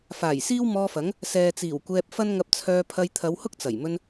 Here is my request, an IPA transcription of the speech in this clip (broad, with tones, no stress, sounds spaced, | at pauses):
f aː˨˩ j s iː˥ w m ɔː˧ f ɐ˨˥ ŋ | s ɛː˨ t͡s iː˨˩ w kʷ ɛː˧ p̚ f ɐ˥ n ŋ ɐ˧ p̚ t͡sʰ œː˧ pʰ ɐ˧ j t̪ʰ ɐ˨˧ w h ʊ˥ k̚ t͡s ɐ˨˩ j m ɵ˧ n